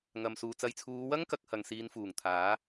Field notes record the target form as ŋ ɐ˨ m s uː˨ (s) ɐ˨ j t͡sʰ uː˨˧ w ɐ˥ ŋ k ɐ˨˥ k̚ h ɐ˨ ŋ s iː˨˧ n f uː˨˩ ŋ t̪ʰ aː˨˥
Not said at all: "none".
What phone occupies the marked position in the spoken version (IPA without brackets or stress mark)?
t͡s